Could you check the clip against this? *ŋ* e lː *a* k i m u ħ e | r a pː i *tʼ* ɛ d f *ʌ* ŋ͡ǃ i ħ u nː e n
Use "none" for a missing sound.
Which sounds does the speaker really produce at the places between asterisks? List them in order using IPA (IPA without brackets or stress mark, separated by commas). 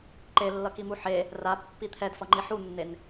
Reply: ǃ, ʌ, t̪ʰ, ʌ